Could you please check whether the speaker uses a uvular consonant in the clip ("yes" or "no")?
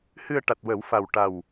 no